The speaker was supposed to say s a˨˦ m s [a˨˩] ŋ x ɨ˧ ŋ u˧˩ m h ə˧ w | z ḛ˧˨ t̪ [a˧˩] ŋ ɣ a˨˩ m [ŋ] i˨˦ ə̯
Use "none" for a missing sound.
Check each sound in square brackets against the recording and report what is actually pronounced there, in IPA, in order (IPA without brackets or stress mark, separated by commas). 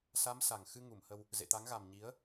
a˨˩, a˨˦, ɲ